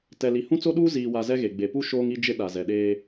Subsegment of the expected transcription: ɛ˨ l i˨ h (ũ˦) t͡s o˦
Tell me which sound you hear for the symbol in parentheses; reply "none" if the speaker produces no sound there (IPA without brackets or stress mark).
ũ˦